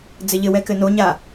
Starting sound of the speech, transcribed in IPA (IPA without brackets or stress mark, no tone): d͡z